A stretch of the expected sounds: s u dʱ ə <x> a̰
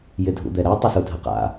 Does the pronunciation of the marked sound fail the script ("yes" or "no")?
yes